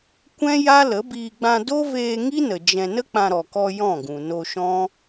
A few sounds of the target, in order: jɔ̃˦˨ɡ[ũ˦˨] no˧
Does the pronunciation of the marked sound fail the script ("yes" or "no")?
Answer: yes